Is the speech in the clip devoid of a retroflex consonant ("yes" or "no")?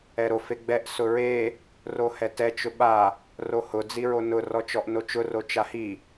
yes